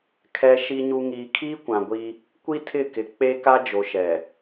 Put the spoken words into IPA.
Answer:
kʰ ɛ˨ ʃ i˨ ɲ u˨ ŋ iː˨ kʰ iː˦ kʷ ã˨ ɡʷ i˦ | kʷ i˦ tʰ ɪ˦˨ k ɪ˨ k͡p e˦ k a˦ d͡ʒ o˨ ʃ ɛ˨

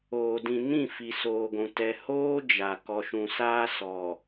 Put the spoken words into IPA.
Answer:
oː˨ d ĩ˨ n ĩ˦˨ f i˨ s oː˨ ɡʷ ũ˨ t ɛ˨ h oː˦ d͡ʒ a˨ k ɔ˨ ʃ ũ˨ s aː˦ s ɔ˨

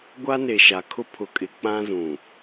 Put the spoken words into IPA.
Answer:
ɡʷ a˦ n e˨ ʃ a˨ kʰ ʊ˦ pʰ ʊ˨ kʼ ɪ˨ k͡p ã˦ z ũ˨

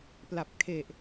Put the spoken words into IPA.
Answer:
p l a˨˩ p̚ kʰ e˨˩ ʔ

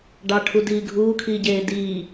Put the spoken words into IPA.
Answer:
ɖ ɑ ʈʰ u d iː ɡʱ uː kʰ iː ɟ eː d iː

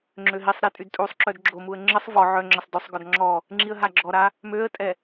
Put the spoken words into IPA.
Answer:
ŋ͡ǁ ø ɦ i sˤ ɾ i tʼ y d tʼ u sˤ ǁ œ d ɡ͡ǁ o m u ə̯ ŋ͡ǁ ə sˤ v ɔ ʕ œ ŋ͡ǁ ə sˤ d ø sˤ ɡ ɔ d ŋ͡ǁ ɔ | ŋ͡ǁ i ə̯ ɦ a ɡ͡ǁ ɔ ɾ a | m ø ə̯ tʼ ɛ

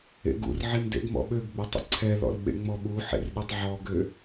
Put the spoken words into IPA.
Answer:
ḛ ɡ ṵ r ʕ i m d ḛ ɡ m ɔ̰ ɓ ø ɡ ɡ͡b e tˤ ə̰ ǀʰ ɛ l ɔ̰ l ɓ ḛ ŋ͡m ɔ ɓ u ħ ḛ r ɗ i tˤ ʕ ɔ ɡ ø

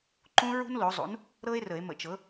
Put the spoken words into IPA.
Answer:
ǃ ũ˥ ɹ ṳ˥ n l o˩˥ zˤ ṵ˩˥ n | ɾ ɤ˥ e̯ r ə˨˩˦ e̯ m ə̰˨˩˦ t͡ʃ ɤ˩˥

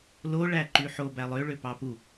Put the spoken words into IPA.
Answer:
l o ɭ æ ǃ y ħ o b æ lˠ ø ɭ ø p ɑ p u

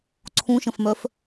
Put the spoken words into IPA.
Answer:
ǀʰ ũ ʃ ə̃ f m œ f

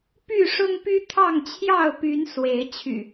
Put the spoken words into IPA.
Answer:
p y˥˨ ʂ ʊ˦ ŋ p y˦ t̪ʰ ɑ˥˨ ŋ t͡ɕʰ j ɑ˥˨ ʊ̯ p y˨˦ n s w e˨˦ ɪ̯ t͡ɕʰ y̰˨˩

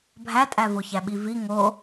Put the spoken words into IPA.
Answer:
bʱ æ tʼ æ v o ç æ ɓ i v i ŋ o

